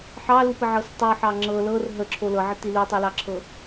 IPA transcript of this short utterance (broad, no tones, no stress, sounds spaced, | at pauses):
ħ ɑ l u p ə ʕ ɤ s tˤ u ħ ɑ ŋ͡ǁ ɤ l ɤ r ɦ ə ǁʰ o l ɤ ʕ ə t i l u tˤ i l ɑ ǁʰ ɤ